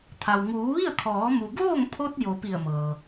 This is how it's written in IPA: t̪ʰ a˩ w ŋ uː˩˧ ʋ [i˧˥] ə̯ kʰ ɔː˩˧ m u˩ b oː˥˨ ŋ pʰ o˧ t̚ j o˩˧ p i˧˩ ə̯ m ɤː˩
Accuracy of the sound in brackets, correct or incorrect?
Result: incorrect